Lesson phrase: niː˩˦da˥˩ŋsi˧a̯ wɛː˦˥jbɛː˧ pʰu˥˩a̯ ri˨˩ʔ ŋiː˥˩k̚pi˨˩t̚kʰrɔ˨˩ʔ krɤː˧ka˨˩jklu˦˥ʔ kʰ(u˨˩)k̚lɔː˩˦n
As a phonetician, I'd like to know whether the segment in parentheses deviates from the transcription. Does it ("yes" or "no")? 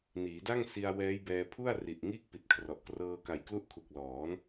no